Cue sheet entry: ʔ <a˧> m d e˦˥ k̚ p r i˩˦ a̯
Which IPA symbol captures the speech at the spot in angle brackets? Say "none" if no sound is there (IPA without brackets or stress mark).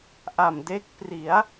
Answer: a˨˩